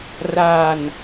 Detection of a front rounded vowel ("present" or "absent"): absent